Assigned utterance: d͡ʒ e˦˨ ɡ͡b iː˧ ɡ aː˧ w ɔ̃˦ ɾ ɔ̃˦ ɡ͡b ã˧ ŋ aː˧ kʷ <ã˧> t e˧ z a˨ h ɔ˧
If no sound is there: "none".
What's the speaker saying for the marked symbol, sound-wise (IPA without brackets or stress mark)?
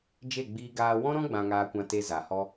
ã˧